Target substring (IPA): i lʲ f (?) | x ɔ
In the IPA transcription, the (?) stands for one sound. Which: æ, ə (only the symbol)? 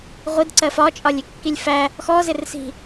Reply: æ